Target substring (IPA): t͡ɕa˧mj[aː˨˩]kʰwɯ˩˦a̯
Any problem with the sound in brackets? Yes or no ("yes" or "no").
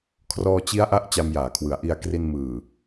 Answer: yes